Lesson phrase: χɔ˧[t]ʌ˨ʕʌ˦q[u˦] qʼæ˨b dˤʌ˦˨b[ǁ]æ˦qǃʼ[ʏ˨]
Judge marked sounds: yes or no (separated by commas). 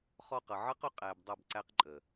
no, no, no, no